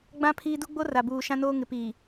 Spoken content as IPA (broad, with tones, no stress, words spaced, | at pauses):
ɡ͡bã˦ pʰiː˦ du˦ɡ͡bo˦ra˨buː˨ ʃã˦noː˦ ŋɪ˨piː˨